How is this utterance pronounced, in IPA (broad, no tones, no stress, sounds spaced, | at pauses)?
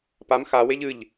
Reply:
p a m x a w e ʎ ɨ ʎ